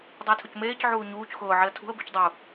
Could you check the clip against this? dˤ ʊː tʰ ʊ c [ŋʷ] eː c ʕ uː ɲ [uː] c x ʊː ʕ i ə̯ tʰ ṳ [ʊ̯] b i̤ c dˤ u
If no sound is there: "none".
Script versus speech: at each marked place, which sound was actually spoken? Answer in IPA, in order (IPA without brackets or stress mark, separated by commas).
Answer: m, uː, ə̯